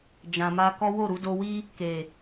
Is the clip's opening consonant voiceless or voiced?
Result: voiced